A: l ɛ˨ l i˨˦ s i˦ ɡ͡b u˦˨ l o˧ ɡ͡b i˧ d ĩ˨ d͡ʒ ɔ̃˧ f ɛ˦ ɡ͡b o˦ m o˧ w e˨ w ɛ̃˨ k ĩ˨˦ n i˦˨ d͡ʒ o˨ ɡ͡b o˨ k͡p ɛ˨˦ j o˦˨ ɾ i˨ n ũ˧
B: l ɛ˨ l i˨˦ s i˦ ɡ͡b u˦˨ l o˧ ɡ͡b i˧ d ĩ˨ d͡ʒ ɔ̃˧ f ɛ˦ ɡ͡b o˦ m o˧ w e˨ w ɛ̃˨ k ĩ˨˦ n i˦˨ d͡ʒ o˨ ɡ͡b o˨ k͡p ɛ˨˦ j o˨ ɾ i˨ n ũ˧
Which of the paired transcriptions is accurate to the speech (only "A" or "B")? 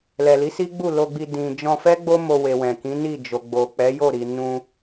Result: A